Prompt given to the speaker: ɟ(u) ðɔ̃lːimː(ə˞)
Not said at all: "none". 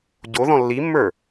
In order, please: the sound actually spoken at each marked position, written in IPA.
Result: o, ə˞

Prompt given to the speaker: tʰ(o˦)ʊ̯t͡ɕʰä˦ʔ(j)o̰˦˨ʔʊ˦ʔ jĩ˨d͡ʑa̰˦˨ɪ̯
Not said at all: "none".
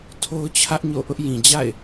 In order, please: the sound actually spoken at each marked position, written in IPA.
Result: o˦, ɲ

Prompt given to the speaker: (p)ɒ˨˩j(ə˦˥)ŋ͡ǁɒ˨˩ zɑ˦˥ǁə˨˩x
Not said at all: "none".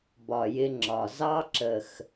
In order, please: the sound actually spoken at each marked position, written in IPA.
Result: b, ɪ˦˥

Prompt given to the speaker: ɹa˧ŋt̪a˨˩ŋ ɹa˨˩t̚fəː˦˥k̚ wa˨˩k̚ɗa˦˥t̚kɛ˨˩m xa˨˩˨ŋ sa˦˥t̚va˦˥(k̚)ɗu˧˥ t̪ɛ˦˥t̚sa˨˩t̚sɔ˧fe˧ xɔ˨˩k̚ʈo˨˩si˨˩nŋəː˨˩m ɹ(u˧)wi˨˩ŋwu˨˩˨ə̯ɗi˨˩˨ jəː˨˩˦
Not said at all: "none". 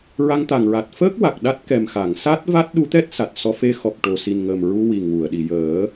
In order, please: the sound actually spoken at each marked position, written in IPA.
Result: t̚, u˧

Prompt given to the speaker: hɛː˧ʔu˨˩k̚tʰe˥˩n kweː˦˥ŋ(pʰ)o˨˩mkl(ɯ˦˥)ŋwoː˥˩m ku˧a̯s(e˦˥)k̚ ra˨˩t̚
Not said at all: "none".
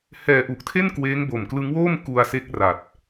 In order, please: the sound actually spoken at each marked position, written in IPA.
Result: b, ɯ˦˥, e˦˥

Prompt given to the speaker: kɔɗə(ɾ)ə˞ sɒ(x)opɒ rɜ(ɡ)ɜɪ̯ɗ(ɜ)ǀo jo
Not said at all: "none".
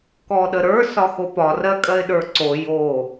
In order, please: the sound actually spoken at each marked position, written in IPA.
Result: ɾ, x, kʼ, ə˞

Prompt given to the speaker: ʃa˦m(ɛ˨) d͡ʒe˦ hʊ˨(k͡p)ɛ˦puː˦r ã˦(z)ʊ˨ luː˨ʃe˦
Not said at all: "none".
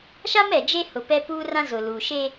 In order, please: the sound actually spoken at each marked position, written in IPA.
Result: ɛ˨, p, z

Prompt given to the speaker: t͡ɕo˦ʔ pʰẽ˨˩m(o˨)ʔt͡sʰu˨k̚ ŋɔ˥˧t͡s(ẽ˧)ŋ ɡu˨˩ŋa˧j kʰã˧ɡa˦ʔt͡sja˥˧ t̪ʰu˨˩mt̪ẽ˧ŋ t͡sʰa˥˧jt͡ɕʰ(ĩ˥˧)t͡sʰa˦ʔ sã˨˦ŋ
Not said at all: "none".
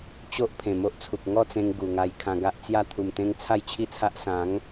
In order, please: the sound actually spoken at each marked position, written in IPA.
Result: o˦, ẽ˧, i˥˧

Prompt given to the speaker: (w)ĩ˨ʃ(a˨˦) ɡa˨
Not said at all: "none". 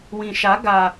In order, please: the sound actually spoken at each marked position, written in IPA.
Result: w, a˨˦

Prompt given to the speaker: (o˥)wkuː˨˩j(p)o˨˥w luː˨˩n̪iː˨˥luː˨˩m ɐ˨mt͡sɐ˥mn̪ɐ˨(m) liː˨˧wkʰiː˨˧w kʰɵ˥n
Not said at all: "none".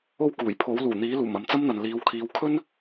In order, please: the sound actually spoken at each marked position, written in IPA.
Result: o˥, pʰ, n

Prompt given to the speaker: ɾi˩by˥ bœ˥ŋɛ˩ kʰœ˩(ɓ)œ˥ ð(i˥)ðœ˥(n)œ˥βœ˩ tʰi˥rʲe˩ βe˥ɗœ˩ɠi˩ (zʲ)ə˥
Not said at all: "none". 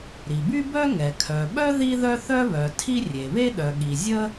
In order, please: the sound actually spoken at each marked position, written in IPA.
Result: ɓ, i˥, θ, zʲ

